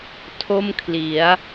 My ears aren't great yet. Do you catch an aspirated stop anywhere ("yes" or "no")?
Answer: yes